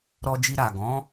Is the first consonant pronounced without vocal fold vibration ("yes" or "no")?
no